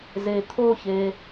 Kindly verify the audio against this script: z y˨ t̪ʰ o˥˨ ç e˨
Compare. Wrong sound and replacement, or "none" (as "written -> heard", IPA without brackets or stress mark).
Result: y˨ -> e˨